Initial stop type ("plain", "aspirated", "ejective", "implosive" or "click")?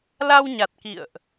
plain